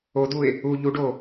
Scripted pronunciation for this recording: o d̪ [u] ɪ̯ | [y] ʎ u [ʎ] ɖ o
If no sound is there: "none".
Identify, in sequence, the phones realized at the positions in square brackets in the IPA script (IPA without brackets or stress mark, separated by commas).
u, u, none